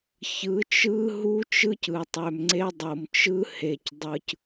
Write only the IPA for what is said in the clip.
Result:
ç ɯ˨˦ t͡ʃ ɯ˦ ɦ u˦ t͡ʃ ɯ˦ c ɯ˨ tˤ ø˨ m ŋ͡ǀ e˦ dˤ o˨ m t͡ʃ ɯ˦ h e˨ c dˤ ɯ˨ c

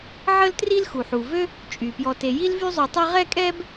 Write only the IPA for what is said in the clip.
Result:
ʕ ə˥ l t r i˥ l x u˩ ħ u˩ v ø˥ | t͡ʃʼ y˩ p j ɔ˨ t e˨ j i˦ l v y˦ zˤ y˨ tˤ ɛ˦ ʁ ɛ˥ kʼ ɛ˥ b

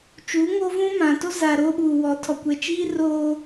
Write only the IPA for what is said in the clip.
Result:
t͡ʃ uː˨˦ ŋ oː˦ v ũ˦ m ã˨ t o˦ z a˨ ɾ oː˦ ɓ uː˨ w ɔ˨˦ tʰ ɔ˨ kʷ ɛ˨ t͡ʃ iː˦ r oː˦

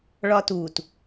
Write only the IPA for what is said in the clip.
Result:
ɭ ɒ t u t

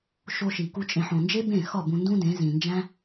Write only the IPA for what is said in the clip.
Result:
ʃ o˧ ʃ i˨ k u˧ t͡ʃʼ ẽ˨ ħ õ˨ n d͡ʒ e˦ b ẽ˦˨ x ɒ˦˨ b ũ˧ n d ũ˦ d ẽ˨˦ z ĩ˨ n d͡ʒ æ̃˦

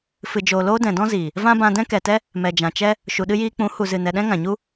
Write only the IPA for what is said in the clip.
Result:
f ɨ˨ d͡ʒ oː˨ l oː˧ d ɛ̃˨ d ɔ̃˦ z iː˨ | v ã˦ b ã˧ d ɛ̃˦ k ɛ˨ t ɛ˦ | m ɛ˨ d͡ʒ ã˨ t͡ʃ ɛ˦ | ʃ u˨ ɗ ɨ˧ j iː˧ k͡p ũ˨˦ h u˨ z ɨ˨ n ɛ˨ ɗ ɛ̃˦ ŋ ã˨ ɲ u˦

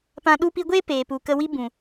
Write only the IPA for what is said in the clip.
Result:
p ã˧ ɗ u˧ p i˧ ɡʷ eː˦ p eː˨ p u˨ k ə˧ w i˦ b ũ˨

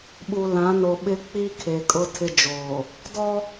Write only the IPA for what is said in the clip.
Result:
ɓ u˨ l ã˨˦ n o˨ ɓ ɪ˦ k͡p i˦ kʰ e˨ kʼ ʊ˦ tʰ ɪ˦ d͡ʒ oː˨ | d ɔ˦

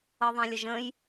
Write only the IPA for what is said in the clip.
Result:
ɤ ðˤ ã lʲ ə ʒ ə̃ j

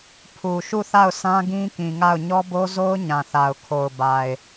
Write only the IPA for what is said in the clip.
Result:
pʰ u˨ ʃ u˦˨ θ a˦˨ ʊ̯ s ã˦ ɡ ĩ˦ k ĩ˨ ŋ a˦˨ ʊ̯ ɲ ɔ˦ b o˦ z o˦ ʊ̯ ɲ ã˨ θ a˨ ʊ̯ kʰ o˨ ʊ̯ b a˨ ɪ̯

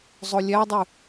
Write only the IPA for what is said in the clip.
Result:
zˤ o lʲ æ dˤ ʉ

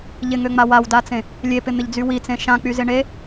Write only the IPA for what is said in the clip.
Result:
ʎ ɪ ŋ ø ŋ͡m a w a w d a t͡s ẽ | lʲ e p ɪ n̪ ɪ ʎ d͡z y w i t͡s ẽ ʃ ã k͡p y z ɪ ɳ e

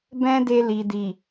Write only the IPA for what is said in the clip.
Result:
b ɛ̃˦ d e˧ l i˨ d i˨

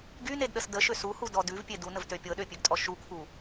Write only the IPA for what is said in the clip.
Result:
ɡ y n e d ɗ ə s d ə ʃ ø s u h u d ɔ d ʉ v pʲ e d u n ə v t ø pʲ ɤ ɗ ø pʲ ʉ ɡ tʼ ɔ ʃ u kʰ u

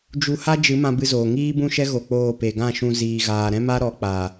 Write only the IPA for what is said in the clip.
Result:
d͡ʒ u˦ h a˦ d͡ʒ ɨ˨˦ m ã˧ b ɨ˧ z oː˨ ŋ iː˦ b ũ˦ ʃ ɛ˦ ɣ o˧ k͡p oː˦˨ p e˨ ɡ ã˦˨ ʃ ũ˧ z iː˨ ɣ aː˨ ɾ ɛ̃˦ m a˦ ɾ ɔ˨˦ k͡p a˨

